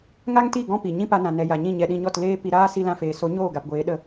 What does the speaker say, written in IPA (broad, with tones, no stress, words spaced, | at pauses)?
ŋa˦ŋti˦˨ ɡɔ̃˦pi˨ ɲĩ˦pa˧nã˨ nɛ˨ja˨ ɲĩ˦˨ɲɛ˧ɗĩ˧ɲɔ˦˨t leː˦ pi˧ɾaː˦ si˧lã˧feː˨so˨˦ ɲoː˦˨ɡa˨pɡʷeː˨˦ ɗə˧